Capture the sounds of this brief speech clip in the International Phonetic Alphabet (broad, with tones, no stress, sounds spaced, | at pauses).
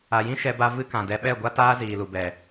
a˨ j ĩ˦ ʃ ɛ˧ b a˧ v ɨ˧ k ã˨ d ɛ˧ ɓ ɛ˦˨ ɡʷ a˦ t aː˦ z iː˨ l u˨ b ɛ˨